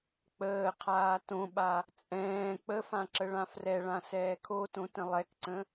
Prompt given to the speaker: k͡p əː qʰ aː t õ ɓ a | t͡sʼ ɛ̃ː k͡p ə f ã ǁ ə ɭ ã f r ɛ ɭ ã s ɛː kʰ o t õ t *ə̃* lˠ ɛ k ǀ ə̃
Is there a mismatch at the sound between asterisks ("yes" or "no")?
no